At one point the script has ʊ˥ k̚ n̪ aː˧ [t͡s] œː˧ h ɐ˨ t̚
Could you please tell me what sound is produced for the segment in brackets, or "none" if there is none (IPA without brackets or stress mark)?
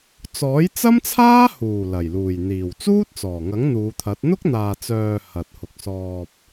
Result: t͡s